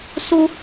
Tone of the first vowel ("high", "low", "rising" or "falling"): high